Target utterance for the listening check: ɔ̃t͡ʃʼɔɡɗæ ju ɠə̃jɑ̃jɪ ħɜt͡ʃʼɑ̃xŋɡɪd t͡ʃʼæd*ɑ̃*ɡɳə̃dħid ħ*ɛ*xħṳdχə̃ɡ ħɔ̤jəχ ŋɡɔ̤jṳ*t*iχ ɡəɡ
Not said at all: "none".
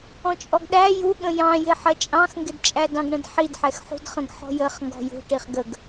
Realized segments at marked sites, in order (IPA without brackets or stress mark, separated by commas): ɑ̃, ɛ, ʈ